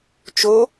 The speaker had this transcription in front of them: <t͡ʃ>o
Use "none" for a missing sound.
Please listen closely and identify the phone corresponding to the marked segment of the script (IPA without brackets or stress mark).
t͡ʃ